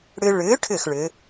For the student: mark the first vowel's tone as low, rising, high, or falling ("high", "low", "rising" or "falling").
high